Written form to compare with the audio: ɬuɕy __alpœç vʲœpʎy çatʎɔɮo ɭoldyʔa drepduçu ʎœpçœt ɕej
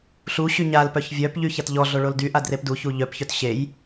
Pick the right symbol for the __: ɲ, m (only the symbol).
ɲ